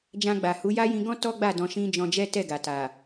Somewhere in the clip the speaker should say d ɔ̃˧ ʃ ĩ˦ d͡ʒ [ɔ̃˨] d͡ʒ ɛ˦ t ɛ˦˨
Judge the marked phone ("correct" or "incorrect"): incorrect